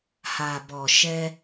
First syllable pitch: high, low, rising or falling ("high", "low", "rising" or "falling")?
low